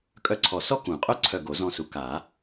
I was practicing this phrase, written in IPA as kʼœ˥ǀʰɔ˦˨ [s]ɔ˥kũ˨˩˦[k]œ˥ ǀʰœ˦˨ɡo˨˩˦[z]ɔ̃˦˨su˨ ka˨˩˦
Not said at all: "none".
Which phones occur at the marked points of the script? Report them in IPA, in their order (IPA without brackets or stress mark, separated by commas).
s, qʼ, z